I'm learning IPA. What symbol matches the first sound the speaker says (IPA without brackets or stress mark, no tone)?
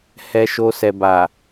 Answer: h